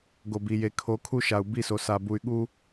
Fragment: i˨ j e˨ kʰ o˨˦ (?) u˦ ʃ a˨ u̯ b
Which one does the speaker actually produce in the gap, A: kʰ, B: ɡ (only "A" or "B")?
A